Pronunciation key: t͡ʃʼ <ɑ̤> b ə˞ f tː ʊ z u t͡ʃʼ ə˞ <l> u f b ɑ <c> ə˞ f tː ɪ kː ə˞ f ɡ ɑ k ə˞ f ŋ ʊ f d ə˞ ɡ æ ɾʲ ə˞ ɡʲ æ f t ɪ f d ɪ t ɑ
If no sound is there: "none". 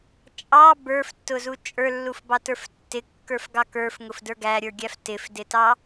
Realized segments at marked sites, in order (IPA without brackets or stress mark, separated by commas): ɑ, lː, t